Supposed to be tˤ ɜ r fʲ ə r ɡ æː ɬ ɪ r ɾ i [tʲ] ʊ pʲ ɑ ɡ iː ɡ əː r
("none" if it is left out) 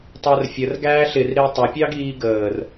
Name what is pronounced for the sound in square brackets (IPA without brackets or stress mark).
tˤ